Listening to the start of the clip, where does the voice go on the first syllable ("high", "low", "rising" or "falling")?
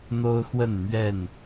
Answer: high